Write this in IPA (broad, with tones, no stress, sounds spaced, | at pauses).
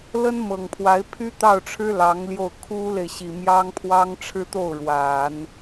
l ə˥ n m ɤ˨˩ ŋ pʰ w a˧˥ ɪ̯ pʰ y˥ t̪ ɑ˥˩ ʊ̯ ʈ͡ʂʰ ɻ̩˥ l ɑ˧˥ ŋ l j o˥˩ ʊ̯ kʰ u˥ l e˨ ɪ̯ ɕ i˨˩ m j ɑ˥ ŋ pʰ w ɑ˥ ŋ ʈ͡ʂʰ ɻ̩˥ t̪ o˥˩ ʊ̯ ɻ w a˨˩˦ n